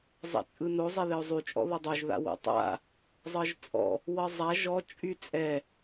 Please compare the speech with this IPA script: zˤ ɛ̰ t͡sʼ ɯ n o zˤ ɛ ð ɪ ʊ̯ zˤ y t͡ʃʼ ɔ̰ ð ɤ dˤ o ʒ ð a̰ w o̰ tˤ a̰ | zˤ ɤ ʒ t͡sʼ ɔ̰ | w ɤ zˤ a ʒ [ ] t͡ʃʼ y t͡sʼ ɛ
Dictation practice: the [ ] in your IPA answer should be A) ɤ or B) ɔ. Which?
B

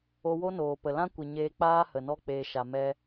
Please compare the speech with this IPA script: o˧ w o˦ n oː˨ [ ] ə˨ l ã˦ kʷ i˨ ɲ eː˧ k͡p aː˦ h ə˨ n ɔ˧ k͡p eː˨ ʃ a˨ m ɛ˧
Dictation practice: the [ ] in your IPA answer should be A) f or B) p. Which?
B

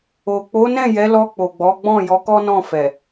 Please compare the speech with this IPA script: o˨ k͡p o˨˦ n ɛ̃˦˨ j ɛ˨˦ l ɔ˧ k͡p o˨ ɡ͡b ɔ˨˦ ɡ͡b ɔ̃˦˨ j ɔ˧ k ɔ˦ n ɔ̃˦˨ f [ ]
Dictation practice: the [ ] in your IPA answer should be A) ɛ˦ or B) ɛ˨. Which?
B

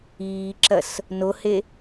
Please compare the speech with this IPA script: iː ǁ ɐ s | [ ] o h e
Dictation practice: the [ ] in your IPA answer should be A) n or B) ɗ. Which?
A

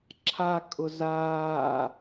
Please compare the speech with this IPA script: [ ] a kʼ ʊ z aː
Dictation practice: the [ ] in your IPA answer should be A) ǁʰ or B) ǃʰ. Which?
A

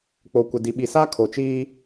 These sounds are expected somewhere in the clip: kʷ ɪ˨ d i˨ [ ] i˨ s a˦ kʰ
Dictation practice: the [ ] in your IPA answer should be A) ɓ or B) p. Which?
A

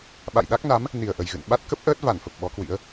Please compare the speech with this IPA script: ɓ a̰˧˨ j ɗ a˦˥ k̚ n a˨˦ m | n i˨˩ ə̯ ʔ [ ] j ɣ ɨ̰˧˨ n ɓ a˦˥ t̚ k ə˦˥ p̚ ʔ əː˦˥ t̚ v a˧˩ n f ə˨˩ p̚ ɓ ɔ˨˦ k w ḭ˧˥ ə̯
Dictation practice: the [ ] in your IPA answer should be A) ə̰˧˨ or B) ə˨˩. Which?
B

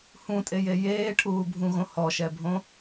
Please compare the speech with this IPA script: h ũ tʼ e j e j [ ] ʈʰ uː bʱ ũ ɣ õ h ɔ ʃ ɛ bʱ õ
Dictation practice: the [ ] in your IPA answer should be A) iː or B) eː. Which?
B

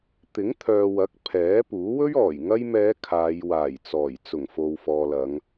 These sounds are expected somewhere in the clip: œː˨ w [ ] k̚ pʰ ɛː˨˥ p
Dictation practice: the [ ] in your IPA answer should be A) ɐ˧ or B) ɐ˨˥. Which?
B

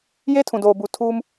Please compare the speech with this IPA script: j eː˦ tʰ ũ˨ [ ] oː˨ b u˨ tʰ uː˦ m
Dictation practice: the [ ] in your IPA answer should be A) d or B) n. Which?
A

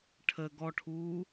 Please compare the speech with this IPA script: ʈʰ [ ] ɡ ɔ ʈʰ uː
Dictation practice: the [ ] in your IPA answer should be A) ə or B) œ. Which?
A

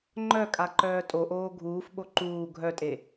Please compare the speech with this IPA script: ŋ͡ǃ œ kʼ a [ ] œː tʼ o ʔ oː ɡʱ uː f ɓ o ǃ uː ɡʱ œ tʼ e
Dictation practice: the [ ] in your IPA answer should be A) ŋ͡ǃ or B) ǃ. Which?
B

